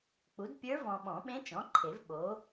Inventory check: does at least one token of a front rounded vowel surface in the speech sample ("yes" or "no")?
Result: no